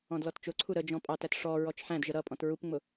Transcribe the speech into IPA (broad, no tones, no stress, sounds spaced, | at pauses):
ɔ̃ d l ɔ t t͡ʃ ʊ ǀʰ u ɾ ə d͡ʒ ɔ̃ pʼ ɑ t æ t ʂ ɔ ɹ ɔ t͡ʃ ħ æ̃ d ʒ ə ɾ ʌ pʼ ɔ̃ t ɹ u p ŋ͡m ʊ